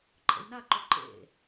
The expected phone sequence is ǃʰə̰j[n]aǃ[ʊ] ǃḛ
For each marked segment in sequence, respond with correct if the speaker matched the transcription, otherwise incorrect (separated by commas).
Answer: correct, incorrect